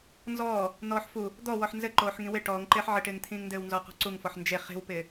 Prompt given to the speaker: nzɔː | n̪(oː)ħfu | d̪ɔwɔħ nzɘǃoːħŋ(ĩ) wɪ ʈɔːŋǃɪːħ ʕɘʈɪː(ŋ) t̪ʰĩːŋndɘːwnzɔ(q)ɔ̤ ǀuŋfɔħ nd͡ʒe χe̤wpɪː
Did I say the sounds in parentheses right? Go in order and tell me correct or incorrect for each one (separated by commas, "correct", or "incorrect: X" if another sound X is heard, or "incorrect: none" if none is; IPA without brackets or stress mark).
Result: incorrect: ɔː, correct, correct, correct